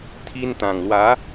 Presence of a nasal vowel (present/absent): present